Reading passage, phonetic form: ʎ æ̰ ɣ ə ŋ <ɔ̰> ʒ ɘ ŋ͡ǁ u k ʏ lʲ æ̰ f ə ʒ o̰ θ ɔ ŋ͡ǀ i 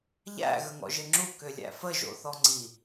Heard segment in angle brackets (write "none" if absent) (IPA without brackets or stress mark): ɔ̰